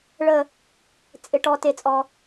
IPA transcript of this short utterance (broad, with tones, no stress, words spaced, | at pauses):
ɭə˦˨ | t͡sʼɪ˨ ʈɔ˨ te˨t͡sʼɔ˨